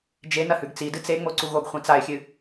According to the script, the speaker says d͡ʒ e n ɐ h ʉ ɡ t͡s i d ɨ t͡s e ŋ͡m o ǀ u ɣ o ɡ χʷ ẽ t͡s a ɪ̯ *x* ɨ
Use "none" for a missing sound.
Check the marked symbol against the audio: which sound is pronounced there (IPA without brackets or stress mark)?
xʲ